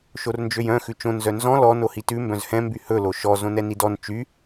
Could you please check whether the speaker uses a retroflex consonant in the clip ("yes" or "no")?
no